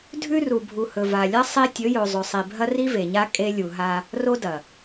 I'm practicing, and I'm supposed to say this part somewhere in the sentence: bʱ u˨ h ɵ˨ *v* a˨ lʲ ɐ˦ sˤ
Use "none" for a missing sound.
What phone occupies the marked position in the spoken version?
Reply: v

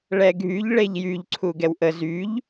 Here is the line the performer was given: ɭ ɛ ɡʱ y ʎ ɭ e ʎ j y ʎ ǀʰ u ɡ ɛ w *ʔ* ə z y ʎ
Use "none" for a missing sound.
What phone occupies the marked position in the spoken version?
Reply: ʔ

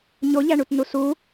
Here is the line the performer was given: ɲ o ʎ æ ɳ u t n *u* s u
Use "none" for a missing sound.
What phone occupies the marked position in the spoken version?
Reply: u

